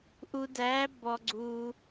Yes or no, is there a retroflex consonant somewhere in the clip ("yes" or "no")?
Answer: no